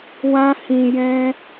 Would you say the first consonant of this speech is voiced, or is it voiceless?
voiced